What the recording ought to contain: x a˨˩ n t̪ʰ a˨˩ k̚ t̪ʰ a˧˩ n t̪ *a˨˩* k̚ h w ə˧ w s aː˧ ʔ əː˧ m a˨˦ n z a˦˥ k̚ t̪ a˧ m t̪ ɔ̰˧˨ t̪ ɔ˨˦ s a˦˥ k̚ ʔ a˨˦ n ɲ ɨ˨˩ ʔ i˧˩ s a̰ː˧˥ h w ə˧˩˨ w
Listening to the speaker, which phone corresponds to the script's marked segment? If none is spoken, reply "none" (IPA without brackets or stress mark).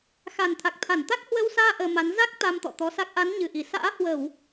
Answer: a˦˥